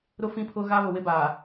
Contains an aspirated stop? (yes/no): yes